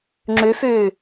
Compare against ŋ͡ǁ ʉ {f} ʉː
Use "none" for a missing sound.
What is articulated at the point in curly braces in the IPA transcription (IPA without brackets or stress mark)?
f